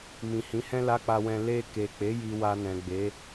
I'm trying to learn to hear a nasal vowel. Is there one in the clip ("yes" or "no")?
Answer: yes